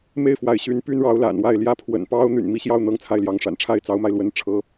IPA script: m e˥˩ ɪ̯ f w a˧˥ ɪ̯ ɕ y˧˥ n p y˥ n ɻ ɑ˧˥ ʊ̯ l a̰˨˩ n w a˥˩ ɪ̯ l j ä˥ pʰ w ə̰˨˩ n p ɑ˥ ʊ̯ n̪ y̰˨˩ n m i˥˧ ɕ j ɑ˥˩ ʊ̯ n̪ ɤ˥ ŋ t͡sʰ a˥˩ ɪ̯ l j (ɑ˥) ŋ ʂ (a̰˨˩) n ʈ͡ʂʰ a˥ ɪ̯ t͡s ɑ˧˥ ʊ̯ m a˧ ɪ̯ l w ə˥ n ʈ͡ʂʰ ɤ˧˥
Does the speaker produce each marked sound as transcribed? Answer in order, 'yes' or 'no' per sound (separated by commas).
no, yes